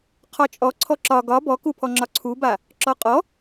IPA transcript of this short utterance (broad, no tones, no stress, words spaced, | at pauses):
qʰɒt͡ʃʼɔ ǀʰɔǁɒ ɡɒ bɔkupʰɔ ŋ͡ǁɒǀʰuba | ǁɔqʼɔ